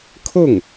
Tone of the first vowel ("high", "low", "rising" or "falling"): falling